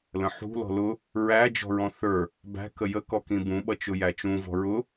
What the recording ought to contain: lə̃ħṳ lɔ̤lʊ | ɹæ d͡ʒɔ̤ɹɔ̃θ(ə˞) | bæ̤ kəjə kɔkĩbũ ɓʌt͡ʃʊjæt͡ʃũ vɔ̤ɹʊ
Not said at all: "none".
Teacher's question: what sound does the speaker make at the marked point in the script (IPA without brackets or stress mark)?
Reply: ə˞